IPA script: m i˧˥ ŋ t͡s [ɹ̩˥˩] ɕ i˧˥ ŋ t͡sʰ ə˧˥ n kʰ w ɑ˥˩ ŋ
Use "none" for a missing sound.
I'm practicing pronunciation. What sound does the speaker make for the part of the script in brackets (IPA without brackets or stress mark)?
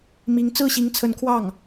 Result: ɹ̩˥˩